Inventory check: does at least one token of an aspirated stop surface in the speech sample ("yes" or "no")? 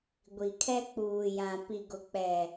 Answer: yes